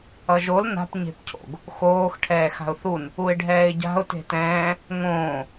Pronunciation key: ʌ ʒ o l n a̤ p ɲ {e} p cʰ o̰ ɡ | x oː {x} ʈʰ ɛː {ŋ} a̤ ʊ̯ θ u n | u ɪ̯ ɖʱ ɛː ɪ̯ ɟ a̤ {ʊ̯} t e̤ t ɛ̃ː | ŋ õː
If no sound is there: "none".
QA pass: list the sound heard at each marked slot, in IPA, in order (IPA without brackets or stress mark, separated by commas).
e̤, x, x, ʊ̯